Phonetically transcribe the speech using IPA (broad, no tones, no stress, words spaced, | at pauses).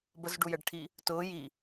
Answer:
bəzɖujɛɖʈʰi | tʊː ji